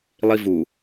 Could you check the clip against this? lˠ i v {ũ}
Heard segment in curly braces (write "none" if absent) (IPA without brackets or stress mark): u